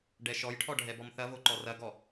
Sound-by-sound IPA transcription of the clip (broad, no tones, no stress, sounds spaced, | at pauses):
ɖ ɛ ʃ ɔ j ʈʰ ɔ ɖʱ ɛ b ɔ m θ ɐ v o ǃ ɔ r ɐ ɡ ɔ